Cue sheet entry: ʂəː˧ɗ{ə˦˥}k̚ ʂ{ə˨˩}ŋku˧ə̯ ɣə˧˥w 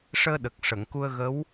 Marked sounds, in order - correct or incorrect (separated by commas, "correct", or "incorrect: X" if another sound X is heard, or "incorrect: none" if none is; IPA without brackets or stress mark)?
incorrect: ə˨˩, incorrect: ə˨˩˨